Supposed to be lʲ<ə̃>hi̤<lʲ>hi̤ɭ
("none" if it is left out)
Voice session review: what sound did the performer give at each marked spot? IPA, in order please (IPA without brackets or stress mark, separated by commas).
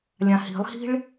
ã, lˠ